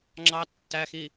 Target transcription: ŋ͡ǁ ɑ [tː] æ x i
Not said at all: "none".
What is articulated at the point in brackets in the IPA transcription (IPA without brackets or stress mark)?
tː